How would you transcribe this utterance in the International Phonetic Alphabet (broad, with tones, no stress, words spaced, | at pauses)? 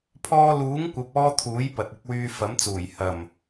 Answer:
pʰɔː˧luː˨˥ŋkʷɐ˨p̚ɔː˧ t̪ʰuː˨˥jpɐ˨t̚ɪ˨˥k̚ wyː˧fɐ˨˥mt͡suː˨˩j hɐ˨˩m